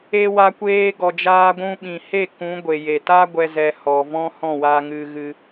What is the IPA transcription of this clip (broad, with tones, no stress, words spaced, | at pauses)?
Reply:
e˧wa˧kʷeː˧ ɡɔ˨d͡ʒaː˧ɡʷũ˧ ɓĩ˨he˦˨ kũ˨˦ ɡʷe˨ je˨ta˦ ɡʷɛ˦zɛ˧ hɔ˨vɔ̃˦ hɔ̃˦˨wa˧ ŋɨ˧ɣɨ˧